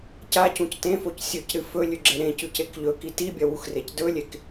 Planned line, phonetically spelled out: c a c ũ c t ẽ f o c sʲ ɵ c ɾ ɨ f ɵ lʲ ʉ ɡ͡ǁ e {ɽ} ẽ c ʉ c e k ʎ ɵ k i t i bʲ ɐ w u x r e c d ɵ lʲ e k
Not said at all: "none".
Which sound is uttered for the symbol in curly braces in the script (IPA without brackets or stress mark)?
ɾ